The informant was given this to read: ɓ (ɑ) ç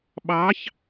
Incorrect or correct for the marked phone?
correct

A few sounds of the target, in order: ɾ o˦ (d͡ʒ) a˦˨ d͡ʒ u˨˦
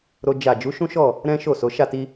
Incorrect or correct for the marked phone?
correct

